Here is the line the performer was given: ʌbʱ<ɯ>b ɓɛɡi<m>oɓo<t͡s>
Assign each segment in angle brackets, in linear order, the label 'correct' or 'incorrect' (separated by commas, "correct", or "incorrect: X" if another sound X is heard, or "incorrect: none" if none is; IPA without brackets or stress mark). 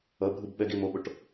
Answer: correct, correct, incorrect: ʈ